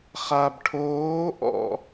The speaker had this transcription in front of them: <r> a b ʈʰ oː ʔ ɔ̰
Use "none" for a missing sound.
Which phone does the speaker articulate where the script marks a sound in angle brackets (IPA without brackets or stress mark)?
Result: χ